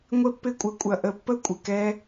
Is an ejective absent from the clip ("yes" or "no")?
no